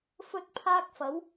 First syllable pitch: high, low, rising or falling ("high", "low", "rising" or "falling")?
high